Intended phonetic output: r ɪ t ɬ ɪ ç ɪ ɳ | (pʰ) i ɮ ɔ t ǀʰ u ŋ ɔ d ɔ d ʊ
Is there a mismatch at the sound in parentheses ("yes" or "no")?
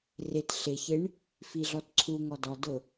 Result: yes